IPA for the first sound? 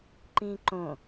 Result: ǃ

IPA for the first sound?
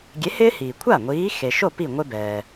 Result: ɡʲ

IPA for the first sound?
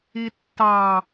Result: i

